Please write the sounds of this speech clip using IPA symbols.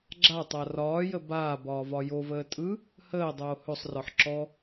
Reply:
ɡ͡ǁa tˤarɒːjə baːbɒː vɒjovəː tʼɯ | həːdˤoː hɵsˤrɒħ ǁɔ

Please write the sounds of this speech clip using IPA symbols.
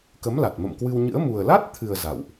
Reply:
kə˨˦mla˨˩t̚mə̰˧˨mkwɨ˧w ɲɨ̰˧˥ə̯ mu˨˩ə̯la˦˥t̚t̪ʰɨ˨˩ə̯ za̰˧˨wʔ

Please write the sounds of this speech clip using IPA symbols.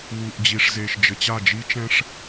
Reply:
wu˨ʔd͡ʑi˨ʂ ze˨ʃd͡ʒɘ˨t͡ɕa˦˨ d͡ʒi˦t͡ʃɛ̃˦ʂ

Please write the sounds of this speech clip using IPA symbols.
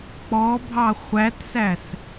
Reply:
k͡pɔbʱɑ χʷætsæs

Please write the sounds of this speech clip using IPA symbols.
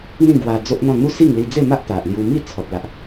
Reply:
n̪ĩ˥˧ɡwa˧ d͡zo˦ʔn̪ɔ̃˥˧ n̪u˥˧si˥˧ŋ li˧d͡ze˥˧ma˦ʔ t̪a˨ʔlju˧ mi˥˧t͡sʰɔ˨t̚la˨ʔ

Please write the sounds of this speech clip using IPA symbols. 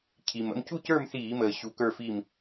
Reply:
cʰi˨˩mə̰˧˥˧m cu˥˨cə˞˥˨mθiː˧˩˧məː˨˩ ɕu˨˥ kə˞˥˨fi˥˨m

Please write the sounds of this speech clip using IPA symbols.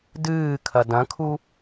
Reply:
dɨːkʰɐ dɐ̃kʰu

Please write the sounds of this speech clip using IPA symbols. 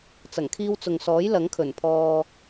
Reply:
t͡sɐ˨˩ŋkʰiː˧wt͡sʊ˨ŋsɔː˨˥j lɐ˨˥ŋkʰɵ˨˩n pʰɔː˧

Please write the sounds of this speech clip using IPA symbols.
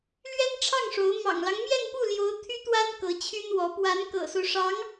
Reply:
lɥɛ˥nʈ͡ʂʰɑ˥˩ŋ ʂo˧˥ʊ̯ mɑ̰˨˩ŋlɑ˦ŋ mjɛ˥˧npu˥˩ljo˧˥ʊ̯ t̪ʰy˥t̪wa˥n kɤ˧˥t͡ɕʰy˥nwɔ˧˥ pwa˧˥n kɤ̰˨˩so˦ʊ̯ ʂɑ˧˥ŋ

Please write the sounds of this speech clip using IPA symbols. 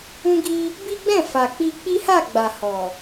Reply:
ũ˦ɡi˦ | bi˦ɡ͡bɛ̃˦˨ fa˨ k͡pi˧ k͡pi˦ha˦˨ɡ͡ba˨ hɔ˨

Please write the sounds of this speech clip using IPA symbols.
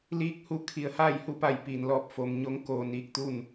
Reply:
liː˧˥k̚hu˧ kʰi˩ə̯haː˥˨jhu˧˥pa˧˩j piː˩nlɔː˧˩p̚foː˩mɲo˧˥ŋ koː˧niː˧k̚t̪uː˥˨n

